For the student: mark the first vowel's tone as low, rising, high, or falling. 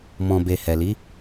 low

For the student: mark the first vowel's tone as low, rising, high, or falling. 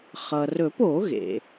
low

